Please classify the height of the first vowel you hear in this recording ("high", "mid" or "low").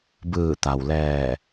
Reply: high